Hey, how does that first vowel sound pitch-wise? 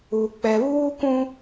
low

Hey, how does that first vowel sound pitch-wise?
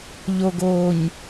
low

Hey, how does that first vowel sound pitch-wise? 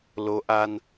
rising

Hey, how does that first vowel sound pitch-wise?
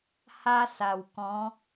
high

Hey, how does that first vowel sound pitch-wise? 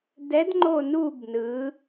rising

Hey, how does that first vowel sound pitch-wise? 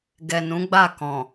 low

